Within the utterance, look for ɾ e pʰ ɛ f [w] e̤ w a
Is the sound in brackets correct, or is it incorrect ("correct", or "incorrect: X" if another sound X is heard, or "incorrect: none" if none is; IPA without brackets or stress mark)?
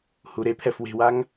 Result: correct